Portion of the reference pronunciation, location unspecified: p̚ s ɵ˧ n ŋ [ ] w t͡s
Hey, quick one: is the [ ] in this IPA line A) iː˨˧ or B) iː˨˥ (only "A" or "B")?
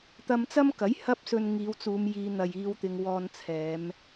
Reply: A